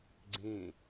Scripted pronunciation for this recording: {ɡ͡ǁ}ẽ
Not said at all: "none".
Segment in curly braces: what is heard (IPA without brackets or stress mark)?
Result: ɡ͡ǀ